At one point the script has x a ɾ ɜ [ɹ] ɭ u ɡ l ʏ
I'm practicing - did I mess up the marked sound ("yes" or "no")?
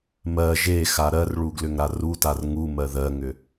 yes